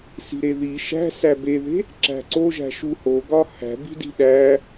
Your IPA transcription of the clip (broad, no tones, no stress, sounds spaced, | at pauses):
s i̤ ɾ e ð i ʃ æ̤ s æ b e ð e̤ | ǁ æ̤ ǀ o ʒ æ̤ ʃ u h o ɡ ɒ h æ̤ b i̤ d i̤ ɗ æ